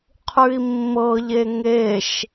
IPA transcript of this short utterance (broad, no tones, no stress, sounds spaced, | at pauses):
qʰ ʉ i̯ mː ɤ ʎ e ŋ e ʃ